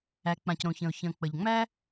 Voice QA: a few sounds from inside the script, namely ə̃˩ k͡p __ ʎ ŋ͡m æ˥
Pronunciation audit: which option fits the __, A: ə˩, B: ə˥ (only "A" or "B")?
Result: A